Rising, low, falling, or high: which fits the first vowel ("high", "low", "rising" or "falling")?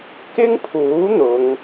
high